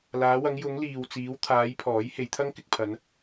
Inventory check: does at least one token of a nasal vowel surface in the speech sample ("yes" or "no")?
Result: no